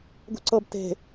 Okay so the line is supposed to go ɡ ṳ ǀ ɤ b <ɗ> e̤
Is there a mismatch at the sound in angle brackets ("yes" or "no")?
yes